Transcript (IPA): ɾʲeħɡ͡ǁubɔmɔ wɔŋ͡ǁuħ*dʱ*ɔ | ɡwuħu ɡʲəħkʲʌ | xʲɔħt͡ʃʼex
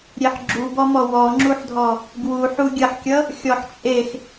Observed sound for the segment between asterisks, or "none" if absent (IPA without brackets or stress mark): dʱ